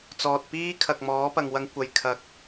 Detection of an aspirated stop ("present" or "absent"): present